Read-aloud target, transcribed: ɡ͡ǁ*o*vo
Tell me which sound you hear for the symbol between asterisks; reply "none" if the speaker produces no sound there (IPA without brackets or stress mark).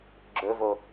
ɵ